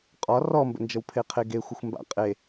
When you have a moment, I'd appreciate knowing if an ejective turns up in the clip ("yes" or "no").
yes